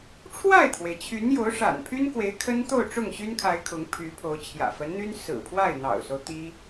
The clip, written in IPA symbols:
ʈ͡ʂʰwa˥˩ɪ̯t̪ʰwe˩ɪ̯t͡ɕʰy˧˥n jo˧˥ʊ̯ʂa̰˨˩npʰy˥nkwe˧˥ɪ̯ kʰə˥nt̪o˥˧ʊ̯ ʈ͡ʂʊ˥˩ŋɕy˥nkʰa˧˥ɪ̯ kʰʊ˧˥ŋpʰy˧˥pʰo˧˥ʊ̯ t͡ɕʰjä̰˨˩fə˧˥nn̪y˥n sɹ̩˨˩ pʰwa˥˩ɪ̯n̪ɑ̰˨˩ʊ̯so˦ʊ̯ t̪i˥

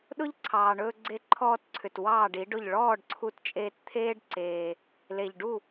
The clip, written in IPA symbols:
ɗʊ˦ʎǀʰɑː˨ɳɵː˧ ɡ͡ǀe˧ǃʰɔː˧tǀʰʏ˨t wɑː˦˨ɖi˨˦ɖʊ˦˨ʎ ɭɔː˦˨ɖǀʰu˧tt͡ʃʼeː˧tt̪ʰeː˦ɖ ǀeː˧ | le˨ʎɖu˦˨

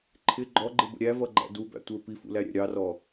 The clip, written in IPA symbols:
ǃʰɪ ɡ͡ǃɔɡ͡ǃɪbə̰ ɾʲævʌɡ͡ǃæ̰ dubæ̰tʷə˞ pifṵlæɾʲæ̰ ɾʲɑrɔ

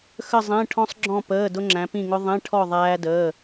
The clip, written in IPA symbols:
xə˧˩zˤĩ˩˧˩ ʈʰɔ̃˧sˤɡ͡ǁɔ̃˧˩pəː˩˧˩ dʊ˧ŋ͡ǁæ̃˩˧pĩ˧˩ŋʊ˧ ðˤĩ˩˧˩ ʈʰɔ˧˩ ðˤæː˧dəː˩˧˩

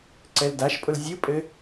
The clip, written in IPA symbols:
ǀɛldaʃpʼʊl zʲɯpʼɘ

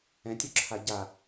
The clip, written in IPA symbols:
ɛ̃tʲoǁʰa ɟa

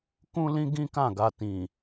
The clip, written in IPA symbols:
kũ˦lĩ˦ ɡĩ˦kã˦˨ɡa˧ tĩ˨

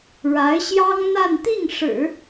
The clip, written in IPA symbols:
ɻa˧˥ɪ̯ɕjɑ˥ŋn̪a˥˧n t̪i˥˩ŋʂɻ̩˨˩˦

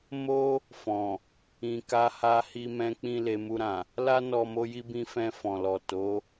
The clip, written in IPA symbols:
mo˦ | fɔ̃˨ | ĩ˨ka˧ ha˧hi˧ mɛ̃˦k͡pĩ˦ le˧mu˧ɾã˨ | la˦nɔ˧ mo˦ji˦bĩ˦ fɛ̃˧ fɔ̃˨lɔ˨ to˨˦

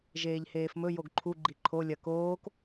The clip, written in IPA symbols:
ʒeːʎheːfmɵ joɡǃʰu ɡ͡ǃiǃʰo lʲɐ koːk

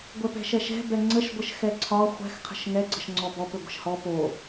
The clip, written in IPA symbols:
ɡʷɛpɛ̤ʃɛʃɛ̤ bɛŋ͡ǀəʃ ɡʷəʃxɛǀʰɒ χʷɛ̤x qʰə̤ʃŋɛ ɡ͡ǀəʃŋ͡ǀɔbɔp ʏɡʷə̤ʃhɔ po

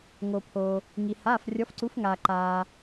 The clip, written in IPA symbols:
ŋo˩pʰoː˩ | ŋi˩ haː˩˧˩frʲɔ˩˧fǀu˩˧fŋaː˩ ǃaː˩

